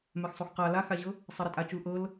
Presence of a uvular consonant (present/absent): present